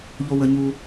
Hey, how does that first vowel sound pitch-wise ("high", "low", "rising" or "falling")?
high